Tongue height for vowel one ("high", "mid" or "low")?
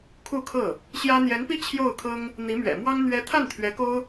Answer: high